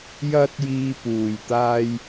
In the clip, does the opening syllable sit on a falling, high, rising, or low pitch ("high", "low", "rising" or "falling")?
high